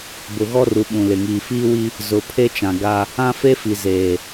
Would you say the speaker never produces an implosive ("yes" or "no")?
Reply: no